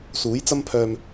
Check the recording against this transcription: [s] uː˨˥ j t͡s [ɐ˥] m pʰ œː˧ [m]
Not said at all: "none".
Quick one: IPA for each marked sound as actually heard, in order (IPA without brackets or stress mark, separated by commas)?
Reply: s, ɐ˥, m